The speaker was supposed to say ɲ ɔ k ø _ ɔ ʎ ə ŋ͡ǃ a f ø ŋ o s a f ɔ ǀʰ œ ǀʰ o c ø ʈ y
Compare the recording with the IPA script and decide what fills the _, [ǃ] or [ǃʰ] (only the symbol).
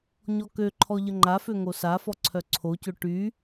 ǃʰ